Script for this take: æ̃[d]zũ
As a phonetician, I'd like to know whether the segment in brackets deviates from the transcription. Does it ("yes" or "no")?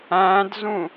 no